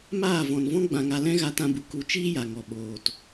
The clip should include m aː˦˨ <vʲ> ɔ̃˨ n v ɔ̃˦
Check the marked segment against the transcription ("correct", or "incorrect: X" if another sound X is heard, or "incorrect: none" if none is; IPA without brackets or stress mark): incorrect: v